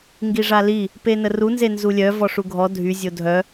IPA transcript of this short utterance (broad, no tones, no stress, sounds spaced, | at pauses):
ŋ ɡ i ʐ a l i | p e n ə r u n z e n z u lʲ œ v ɔ ʂ u ɡʱ ɔ dʱ y zʲ o dʱ œ